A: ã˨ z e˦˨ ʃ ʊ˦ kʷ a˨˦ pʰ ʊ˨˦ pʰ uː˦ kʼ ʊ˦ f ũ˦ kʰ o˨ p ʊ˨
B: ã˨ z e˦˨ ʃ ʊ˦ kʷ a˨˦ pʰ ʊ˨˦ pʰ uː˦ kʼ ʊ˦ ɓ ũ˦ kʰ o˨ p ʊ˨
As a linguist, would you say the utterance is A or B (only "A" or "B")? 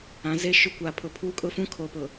A